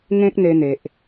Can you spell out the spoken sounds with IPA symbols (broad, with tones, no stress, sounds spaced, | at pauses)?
ŋ ẽ˦ k̚ n̪ e˧ n̪ e˨ ʔ